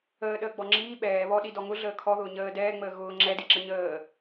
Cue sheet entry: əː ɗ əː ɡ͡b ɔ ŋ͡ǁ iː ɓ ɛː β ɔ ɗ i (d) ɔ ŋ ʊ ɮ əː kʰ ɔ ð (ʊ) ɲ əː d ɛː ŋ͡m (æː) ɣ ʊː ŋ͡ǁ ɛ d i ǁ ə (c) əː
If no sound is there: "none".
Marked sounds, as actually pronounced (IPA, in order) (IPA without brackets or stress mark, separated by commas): d, ʊː, əː, ɲ